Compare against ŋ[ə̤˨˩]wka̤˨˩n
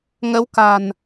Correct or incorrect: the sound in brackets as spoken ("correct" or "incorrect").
incorrect